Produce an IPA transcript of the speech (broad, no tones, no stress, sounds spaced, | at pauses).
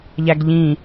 ʎ æ ɡ ʎ ĩ